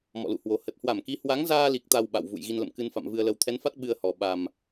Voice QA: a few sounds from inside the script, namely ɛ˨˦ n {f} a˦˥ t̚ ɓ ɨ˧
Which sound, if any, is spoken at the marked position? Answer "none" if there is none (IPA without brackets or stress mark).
f